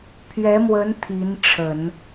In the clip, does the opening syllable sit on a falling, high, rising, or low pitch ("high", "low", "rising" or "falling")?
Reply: rising